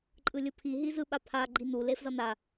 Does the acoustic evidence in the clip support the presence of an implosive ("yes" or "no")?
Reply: yes